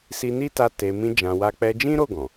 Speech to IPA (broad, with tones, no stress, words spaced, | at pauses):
si˧ni˦ta˧ te˨ mĩ˧d͡ʒã˨wa˧ k͡pɛ˧d͡ʒĩ˦ɾo˦˨ ɡɔ̃˨